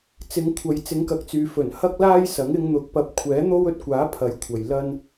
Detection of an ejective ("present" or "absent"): absent